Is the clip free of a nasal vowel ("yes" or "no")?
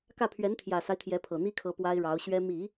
yes